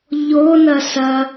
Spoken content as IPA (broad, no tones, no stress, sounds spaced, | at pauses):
ʎ o n ɐ s ɐ